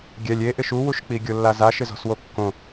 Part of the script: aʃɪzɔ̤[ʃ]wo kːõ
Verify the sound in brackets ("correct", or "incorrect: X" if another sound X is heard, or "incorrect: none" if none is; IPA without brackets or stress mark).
incorrect: s